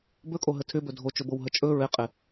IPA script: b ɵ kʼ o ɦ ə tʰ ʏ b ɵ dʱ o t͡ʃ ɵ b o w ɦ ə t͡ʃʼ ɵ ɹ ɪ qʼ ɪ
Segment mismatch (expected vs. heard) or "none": none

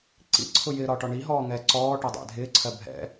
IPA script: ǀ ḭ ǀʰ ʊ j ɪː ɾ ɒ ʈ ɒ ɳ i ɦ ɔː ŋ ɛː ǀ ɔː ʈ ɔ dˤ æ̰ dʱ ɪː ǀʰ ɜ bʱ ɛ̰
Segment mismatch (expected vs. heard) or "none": none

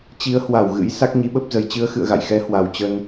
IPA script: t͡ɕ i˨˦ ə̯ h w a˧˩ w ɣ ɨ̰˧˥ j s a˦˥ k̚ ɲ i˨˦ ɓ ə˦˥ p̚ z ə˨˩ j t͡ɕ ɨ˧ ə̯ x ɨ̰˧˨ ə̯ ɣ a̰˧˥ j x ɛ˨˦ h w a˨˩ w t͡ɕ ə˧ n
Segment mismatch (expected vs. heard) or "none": a̰˧˥ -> a̰˧˨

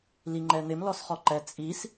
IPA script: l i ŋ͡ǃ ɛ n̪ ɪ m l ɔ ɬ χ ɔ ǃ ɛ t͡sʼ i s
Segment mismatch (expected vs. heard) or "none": ɬ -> s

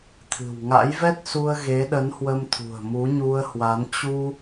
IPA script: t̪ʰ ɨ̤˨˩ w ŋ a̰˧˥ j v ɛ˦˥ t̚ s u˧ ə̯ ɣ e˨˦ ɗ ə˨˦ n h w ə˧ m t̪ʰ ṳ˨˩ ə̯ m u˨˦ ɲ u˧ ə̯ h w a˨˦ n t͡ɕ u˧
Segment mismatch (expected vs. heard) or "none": none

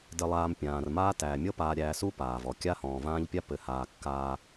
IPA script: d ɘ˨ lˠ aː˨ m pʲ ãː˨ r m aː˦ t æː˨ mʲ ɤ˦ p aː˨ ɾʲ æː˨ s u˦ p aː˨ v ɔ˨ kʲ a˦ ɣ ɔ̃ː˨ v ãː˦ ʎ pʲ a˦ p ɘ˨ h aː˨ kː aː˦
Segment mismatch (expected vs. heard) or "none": ɣ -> h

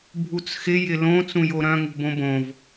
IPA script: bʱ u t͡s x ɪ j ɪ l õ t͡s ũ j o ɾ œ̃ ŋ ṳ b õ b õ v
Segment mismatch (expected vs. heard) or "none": none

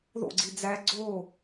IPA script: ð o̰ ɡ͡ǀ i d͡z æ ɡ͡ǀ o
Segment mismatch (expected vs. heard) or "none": none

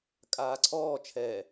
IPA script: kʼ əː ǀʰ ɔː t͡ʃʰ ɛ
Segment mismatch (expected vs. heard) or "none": əː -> aː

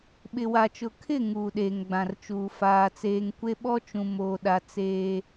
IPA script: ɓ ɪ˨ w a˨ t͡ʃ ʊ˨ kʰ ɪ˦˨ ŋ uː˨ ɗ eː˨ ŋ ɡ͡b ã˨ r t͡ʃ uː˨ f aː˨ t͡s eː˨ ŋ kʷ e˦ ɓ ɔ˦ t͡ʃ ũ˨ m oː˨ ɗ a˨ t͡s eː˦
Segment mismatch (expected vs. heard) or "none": none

